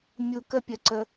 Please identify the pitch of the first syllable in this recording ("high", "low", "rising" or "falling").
low